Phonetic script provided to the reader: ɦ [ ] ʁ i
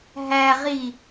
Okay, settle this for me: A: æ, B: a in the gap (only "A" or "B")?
A